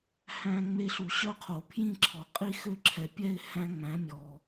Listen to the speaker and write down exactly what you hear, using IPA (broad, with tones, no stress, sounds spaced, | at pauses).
h æ̃˦ ŋ͡m e˦ ɬ u˨˩˦ ɕ œ˥˨ qʰ o˨˩˦ pʰ j ĩ˥˨ ǁʰ ɔ˨ qʼ i˥˨ x ø˦ ǁʰ ɛ˨ pʲ ɛ˥˨ ɪ̯ h æ̃˦ ŋ͡m æ̃˩˥ mʲ ɔ˨